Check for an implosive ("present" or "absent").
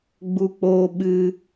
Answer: present